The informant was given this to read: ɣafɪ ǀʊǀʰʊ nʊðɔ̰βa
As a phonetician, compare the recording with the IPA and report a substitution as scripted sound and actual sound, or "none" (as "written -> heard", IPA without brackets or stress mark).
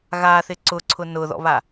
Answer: f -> θ